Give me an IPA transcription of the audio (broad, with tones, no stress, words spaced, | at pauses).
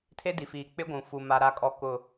tʰe˦di˨fiː˨ k͡pɪ˦ɡʷũ˨fu˨ ma˨ɾa˨kʼɔ˨ kʊ˨